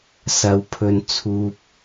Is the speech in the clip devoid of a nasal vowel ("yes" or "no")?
yes